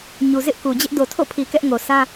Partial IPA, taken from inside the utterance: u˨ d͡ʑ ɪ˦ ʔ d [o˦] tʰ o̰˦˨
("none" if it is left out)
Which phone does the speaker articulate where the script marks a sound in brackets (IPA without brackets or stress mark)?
o˨